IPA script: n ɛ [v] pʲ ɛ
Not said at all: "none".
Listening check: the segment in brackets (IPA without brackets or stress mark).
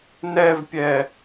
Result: v